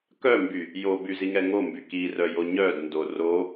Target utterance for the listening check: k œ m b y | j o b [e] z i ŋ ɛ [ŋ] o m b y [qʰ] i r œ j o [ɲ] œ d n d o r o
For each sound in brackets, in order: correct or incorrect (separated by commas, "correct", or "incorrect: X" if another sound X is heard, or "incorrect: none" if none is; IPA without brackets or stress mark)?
incorrect: y, correct, incorrect: k, correct